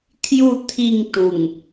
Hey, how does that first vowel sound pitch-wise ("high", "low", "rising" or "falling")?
falling